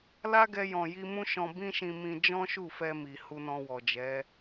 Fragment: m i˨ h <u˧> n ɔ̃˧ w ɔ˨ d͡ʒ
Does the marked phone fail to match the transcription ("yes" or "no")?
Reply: no